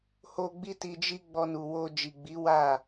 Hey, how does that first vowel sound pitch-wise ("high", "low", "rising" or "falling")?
high